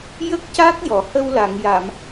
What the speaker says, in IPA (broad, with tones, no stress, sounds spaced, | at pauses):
j ə˦˥ k̚ c a˦˥ k̚ j ɔ˨˩˨ h ə˧ w l a˨˩˨ ŋ j a˨˩˨ m